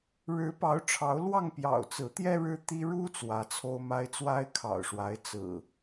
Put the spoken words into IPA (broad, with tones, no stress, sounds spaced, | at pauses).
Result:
ɻ ɻ̩˨˦ p ɑ˨˦ ʊ̯ ʈ͡ʂʰ ɑ˨˦ ʊ̯ l w ɑ˥˨ ŋ p j ɑ̰˨˩ ʊ̯ t͡s ɹ̩˨˦ t̪ j ɛ˦ ɻ ɻ̩˦ t̪ i˦ ɻ u˦ t͡s w ä˨˦ t͡sʰ o˦ ʊ̯ m a˦ ɪ̯ t͡s w a˦ ɪ̯ kʰ ɑ̰˨˩ ʊ̯ ʂ w a˨˦ ɪ̯ t͡s ɹ̩˨˩